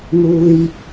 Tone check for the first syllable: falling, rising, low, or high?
low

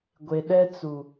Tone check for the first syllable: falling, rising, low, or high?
low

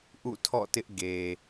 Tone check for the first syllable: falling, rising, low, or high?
falling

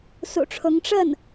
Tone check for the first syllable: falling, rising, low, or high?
low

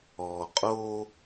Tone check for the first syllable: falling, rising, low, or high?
low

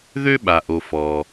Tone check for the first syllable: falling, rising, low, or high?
high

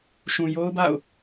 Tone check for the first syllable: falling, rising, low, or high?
low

